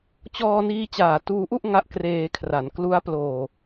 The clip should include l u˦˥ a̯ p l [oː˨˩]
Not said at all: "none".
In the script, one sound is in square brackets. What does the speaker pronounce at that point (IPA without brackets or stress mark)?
oː˨˩